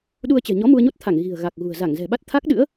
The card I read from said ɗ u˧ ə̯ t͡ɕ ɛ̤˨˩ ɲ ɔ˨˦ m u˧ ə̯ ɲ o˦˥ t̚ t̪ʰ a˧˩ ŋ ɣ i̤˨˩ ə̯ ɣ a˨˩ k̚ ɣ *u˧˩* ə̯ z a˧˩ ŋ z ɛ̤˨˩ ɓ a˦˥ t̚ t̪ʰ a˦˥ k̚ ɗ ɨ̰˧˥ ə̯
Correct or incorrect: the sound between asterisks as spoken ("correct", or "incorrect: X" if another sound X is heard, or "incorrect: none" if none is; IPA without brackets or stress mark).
incorrect: ṳ˨˩